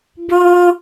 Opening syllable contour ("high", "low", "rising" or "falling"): high